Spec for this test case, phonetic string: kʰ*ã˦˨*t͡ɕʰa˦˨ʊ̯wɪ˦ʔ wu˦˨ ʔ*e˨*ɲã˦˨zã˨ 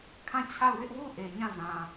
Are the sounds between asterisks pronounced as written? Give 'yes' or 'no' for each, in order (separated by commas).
yes, yes